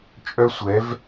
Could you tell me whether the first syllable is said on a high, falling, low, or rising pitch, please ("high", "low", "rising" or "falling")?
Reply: high